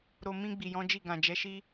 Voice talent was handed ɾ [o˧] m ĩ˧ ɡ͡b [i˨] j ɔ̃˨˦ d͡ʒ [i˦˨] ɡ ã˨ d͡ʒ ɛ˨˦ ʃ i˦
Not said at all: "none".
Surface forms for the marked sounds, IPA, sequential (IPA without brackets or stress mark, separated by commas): o˨, i˨, i˦˨